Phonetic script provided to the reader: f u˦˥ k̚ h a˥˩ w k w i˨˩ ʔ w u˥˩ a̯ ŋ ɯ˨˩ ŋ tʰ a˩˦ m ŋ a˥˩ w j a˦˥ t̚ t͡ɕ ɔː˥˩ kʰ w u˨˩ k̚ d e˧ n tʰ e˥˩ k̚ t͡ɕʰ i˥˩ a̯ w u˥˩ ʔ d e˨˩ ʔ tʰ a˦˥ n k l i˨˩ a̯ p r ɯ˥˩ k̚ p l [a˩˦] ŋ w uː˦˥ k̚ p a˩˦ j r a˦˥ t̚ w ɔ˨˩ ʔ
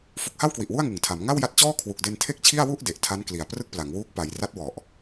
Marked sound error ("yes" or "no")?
no